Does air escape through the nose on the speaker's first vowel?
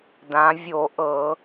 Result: yes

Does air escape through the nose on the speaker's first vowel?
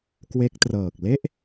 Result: no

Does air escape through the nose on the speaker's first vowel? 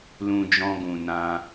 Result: yes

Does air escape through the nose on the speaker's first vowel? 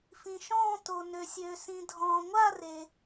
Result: yes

